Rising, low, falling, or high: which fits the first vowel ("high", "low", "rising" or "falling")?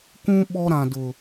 high